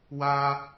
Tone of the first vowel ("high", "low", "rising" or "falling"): high